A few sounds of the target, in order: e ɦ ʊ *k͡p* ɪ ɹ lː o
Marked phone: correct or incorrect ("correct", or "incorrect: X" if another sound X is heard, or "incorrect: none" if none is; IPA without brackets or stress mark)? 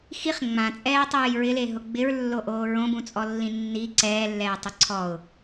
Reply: incorrect: ɡ͡b